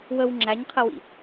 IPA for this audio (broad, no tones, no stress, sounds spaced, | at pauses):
w ə w ŋ͡ǁ æ ɲ qʰ ə w ḭ